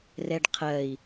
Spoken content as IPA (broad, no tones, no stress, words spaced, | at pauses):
rɛɖqʰɜi̯